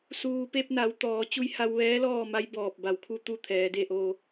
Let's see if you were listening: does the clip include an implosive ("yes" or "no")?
no